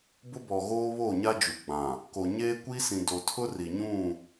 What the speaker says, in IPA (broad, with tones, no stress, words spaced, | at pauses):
bʊ˦bɔ˨ɣoː˦ βoː˦˨ɲa˦ d͡ʒu˨ɡ͡bã˨ | ko˨ɲeː˦kʷi˦sĩ˨ do˨tʰʊ˦ ri˨ɲũ˦˨